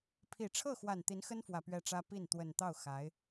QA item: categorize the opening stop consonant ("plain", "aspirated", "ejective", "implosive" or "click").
aspirated